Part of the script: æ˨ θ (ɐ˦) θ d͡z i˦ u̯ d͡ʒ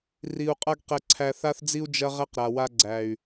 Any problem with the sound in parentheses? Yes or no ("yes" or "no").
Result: yes